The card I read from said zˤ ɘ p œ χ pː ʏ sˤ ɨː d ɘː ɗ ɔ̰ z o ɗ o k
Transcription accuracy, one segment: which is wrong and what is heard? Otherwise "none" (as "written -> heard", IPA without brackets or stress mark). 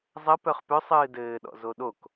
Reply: pː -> p